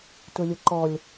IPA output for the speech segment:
tʊlʲʊǃɔlʲ

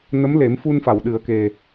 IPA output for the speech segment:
nə˧˥mle˨˩˦m fu˧n fa˨˩˨wɗɨ˨˩˦ə̯ke˨˩

